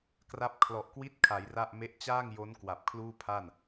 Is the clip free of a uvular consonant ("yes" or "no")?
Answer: yes